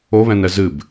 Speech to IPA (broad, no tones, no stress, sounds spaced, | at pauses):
o β ɛ̃ n ɛ z ɨ b